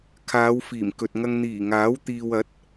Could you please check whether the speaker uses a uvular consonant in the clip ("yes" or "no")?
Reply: no